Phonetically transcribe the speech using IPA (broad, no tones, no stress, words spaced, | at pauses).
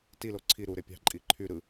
tilo ǀʰi ɾuɾe pʲɑ̤ǃʼi ǃʰy ɾɯ